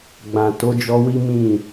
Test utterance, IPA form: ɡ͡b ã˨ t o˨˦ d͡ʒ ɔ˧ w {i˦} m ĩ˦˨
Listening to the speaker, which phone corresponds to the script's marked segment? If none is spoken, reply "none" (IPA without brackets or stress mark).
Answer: i˦